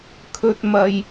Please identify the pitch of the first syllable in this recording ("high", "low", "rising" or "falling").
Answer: low